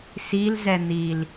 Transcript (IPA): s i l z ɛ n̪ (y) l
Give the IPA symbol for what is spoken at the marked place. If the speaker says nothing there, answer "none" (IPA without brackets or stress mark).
i